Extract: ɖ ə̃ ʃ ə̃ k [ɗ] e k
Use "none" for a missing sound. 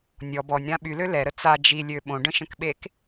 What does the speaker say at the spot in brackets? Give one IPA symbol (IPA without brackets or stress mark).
ɓ